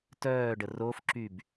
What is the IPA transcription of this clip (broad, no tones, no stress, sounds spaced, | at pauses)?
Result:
t œː ɖ ə r o f ǁ y b